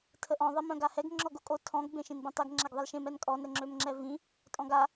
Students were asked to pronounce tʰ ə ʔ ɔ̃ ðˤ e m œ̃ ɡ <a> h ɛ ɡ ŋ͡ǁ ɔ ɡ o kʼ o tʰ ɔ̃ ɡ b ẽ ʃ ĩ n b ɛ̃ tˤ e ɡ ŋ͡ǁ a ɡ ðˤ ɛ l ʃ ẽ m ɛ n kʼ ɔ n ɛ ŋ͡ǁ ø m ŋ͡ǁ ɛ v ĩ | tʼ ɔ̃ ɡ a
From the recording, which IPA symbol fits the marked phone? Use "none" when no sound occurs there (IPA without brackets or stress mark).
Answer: a